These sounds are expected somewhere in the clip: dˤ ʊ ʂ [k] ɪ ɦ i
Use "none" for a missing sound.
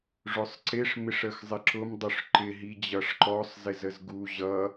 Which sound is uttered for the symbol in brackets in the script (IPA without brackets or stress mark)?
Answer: ǃ